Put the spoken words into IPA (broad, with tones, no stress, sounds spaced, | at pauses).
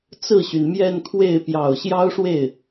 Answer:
t͡s ɹ̩˥˩ ɕ y˩ n m j ɛ˥˧ n kʰ w e˥˩ ɪ̯ p j ɑ˨˩ ʊ̯ ɕ j ɑ˥ ʊ̯ ʂ w e˥˩ ɪ̯